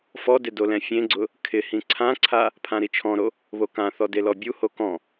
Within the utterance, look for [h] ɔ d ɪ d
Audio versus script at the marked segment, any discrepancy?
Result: yes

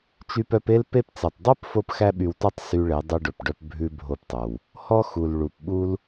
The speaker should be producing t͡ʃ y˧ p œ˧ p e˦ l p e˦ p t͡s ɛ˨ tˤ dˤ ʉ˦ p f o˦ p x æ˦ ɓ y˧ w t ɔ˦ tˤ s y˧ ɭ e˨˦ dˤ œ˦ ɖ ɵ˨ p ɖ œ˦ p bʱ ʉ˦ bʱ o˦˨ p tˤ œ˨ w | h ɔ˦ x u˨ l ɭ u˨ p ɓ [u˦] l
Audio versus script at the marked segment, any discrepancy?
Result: no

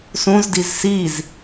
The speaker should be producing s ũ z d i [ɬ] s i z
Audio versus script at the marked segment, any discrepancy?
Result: yes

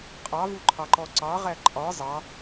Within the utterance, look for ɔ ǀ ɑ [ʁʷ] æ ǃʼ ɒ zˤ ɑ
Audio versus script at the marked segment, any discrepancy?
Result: yes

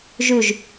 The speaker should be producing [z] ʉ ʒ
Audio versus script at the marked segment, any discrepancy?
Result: yes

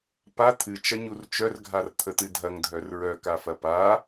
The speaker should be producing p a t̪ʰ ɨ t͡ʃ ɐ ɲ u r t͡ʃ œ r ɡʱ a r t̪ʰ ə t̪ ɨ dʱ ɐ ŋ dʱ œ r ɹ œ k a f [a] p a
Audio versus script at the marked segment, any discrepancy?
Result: yes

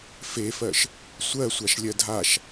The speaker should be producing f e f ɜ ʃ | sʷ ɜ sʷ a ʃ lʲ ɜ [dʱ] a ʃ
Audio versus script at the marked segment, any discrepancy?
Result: no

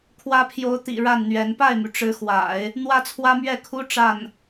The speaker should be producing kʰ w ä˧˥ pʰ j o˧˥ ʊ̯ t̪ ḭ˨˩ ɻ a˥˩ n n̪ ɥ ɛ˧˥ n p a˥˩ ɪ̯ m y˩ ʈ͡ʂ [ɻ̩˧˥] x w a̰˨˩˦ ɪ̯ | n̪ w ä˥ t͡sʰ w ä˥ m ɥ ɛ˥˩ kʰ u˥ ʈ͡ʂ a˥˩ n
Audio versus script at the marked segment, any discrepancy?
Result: no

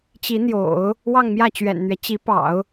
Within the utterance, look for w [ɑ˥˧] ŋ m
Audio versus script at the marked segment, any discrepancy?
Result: no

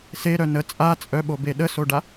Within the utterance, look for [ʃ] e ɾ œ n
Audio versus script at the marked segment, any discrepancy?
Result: yes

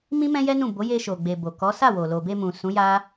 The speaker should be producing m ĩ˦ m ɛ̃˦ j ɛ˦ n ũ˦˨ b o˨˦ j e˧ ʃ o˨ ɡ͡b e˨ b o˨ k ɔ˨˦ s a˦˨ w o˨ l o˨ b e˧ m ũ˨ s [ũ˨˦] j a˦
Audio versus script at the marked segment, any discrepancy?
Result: no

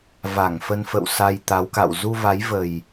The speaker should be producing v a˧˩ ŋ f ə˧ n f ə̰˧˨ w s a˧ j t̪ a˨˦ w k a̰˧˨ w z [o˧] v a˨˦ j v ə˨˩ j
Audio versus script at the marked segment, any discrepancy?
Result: yes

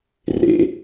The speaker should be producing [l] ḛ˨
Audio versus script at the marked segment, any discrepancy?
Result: yes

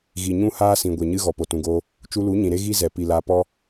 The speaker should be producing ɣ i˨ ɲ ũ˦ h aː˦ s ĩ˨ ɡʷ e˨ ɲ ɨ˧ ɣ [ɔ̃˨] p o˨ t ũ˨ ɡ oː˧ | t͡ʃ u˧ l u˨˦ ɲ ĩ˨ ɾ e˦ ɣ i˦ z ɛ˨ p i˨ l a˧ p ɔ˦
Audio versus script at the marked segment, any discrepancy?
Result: yes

